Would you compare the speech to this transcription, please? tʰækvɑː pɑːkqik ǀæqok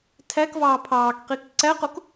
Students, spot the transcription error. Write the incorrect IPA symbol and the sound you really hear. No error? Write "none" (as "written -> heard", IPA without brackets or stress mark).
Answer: p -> pʰ